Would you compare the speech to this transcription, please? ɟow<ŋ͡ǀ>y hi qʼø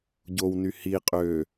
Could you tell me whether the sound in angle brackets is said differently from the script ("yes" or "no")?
yes